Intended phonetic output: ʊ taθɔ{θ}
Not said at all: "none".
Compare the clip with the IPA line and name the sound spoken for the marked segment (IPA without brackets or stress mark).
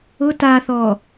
none